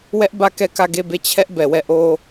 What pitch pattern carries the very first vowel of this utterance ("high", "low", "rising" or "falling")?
high